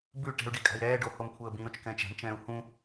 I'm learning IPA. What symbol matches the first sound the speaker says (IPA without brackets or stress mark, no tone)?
b